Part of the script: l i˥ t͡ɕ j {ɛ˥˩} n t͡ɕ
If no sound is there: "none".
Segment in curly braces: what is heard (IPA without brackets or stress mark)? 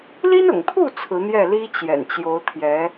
ɛ̰˨˩